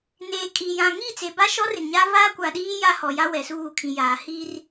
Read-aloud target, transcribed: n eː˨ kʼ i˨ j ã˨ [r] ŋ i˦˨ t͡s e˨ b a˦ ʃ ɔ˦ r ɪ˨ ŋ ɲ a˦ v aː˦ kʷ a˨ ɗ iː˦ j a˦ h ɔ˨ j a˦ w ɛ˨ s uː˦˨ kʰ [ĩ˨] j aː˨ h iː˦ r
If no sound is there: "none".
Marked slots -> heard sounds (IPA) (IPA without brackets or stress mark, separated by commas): none, ĩ˨